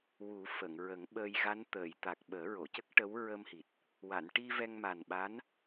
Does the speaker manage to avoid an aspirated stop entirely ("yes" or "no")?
yes